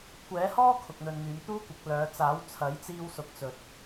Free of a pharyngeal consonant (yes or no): yes